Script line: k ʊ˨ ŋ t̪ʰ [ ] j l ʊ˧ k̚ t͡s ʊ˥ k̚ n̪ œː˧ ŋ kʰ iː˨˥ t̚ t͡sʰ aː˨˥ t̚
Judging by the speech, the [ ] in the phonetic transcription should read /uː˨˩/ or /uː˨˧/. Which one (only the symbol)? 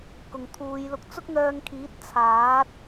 uː˨˧